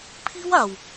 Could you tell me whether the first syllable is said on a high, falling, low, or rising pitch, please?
high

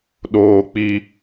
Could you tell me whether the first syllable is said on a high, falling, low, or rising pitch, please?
high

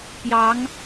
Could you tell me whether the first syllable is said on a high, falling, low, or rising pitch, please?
rising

